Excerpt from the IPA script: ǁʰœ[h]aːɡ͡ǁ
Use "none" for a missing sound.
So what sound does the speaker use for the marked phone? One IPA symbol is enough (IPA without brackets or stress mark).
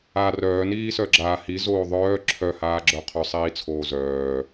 h